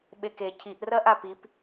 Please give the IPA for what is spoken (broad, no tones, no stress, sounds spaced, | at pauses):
ɓ e k e cʰ i ʔ r ɐ ʔ a p i p